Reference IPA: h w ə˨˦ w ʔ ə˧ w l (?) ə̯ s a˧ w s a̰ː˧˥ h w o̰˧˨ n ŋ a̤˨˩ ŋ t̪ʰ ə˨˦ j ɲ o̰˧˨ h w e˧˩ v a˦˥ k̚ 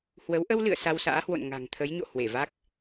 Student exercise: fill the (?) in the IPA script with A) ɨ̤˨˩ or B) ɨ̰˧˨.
B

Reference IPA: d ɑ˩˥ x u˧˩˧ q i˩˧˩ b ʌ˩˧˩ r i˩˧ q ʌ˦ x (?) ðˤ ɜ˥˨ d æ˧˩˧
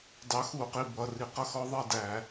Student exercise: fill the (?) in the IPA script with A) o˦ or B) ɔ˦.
B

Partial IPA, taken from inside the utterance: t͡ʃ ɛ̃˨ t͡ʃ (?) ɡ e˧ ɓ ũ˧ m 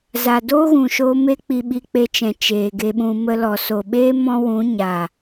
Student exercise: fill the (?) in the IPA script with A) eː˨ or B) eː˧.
A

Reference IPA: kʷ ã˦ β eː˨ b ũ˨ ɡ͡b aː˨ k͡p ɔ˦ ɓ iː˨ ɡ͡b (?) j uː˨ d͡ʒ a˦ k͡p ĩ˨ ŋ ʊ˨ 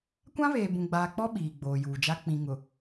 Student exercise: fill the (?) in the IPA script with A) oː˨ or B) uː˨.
A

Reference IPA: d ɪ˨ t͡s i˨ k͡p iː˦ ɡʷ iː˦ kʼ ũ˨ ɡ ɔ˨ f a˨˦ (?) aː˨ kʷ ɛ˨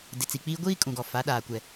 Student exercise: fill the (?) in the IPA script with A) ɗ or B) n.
A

